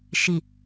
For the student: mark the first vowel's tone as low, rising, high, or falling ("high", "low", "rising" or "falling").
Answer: low